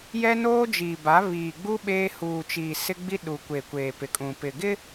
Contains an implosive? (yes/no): yes